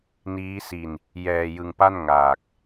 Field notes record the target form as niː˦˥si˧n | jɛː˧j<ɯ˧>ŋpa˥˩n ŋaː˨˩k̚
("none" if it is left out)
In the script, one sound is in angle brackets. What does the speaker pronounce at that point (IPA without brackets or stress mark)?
ɯ˧